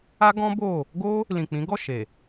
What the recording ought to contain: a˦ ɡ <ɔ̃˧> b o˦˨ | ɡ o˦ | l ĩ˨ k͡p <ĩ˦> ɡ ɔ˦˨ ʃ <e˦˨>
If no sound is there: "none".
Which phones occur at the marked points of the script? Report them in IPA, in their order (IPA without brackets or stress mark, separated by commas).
ɔ̃˦, ĩ˨˦, e˨